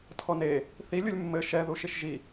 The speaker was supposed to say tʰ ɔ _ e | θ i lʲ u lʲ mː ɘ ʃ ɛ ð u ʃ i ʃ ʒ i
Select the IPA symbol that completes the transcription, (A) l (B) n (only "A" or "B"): B